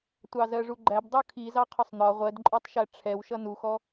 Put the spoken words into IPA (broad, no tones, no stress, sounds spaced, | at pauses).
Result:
tʷ ɑ z ɜ ʐ u ɡ͡ǃ æ b dˤ u kʰ i z ɑ qʰ ʊ sˤ n̪ ɒ ʁʷ ɜ d ǃʼ ɔ tˤ ʃ æ ʈ͡ʂʰ ɛ w ʃ ʌ n u x ɔ